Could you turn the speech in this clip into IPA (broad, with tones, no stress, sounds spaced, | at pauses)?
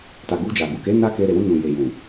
t a˨ ɡ u˧ d͡ʒ a˨ ɡ u˨ k e˨˦ n a˦ k e˧ ɾ e˨ w ũ˧ n ũ˨ j e˨ j ũ˨